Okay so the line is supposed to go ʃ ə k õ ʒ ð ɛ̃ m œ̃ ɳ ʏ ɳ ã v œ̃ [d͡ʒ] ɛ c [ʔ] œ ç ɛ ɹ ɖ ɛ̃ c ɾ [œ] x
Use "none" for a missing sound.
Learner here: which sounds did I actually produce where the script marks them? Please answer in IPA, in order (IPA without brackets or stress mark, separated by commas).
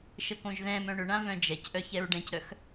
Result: d͡ʒ, ʔ, œ